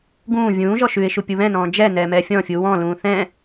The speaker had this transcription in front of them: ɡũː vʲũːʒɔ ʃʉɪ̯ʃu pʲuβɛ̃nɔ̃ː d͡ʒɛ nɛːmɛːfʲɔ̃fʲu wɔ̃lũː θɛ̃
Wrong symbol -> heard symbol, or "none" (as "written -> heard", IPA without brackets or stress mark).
none